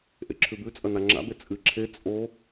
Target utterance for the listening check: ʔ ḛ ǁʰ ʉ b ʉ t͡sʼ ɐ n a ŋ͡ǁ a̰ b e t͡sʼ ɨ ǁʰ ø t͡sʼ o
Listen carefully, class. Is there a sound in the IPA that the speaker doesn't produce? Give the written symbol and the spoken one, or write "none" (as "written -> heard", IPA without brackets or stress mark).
ø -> e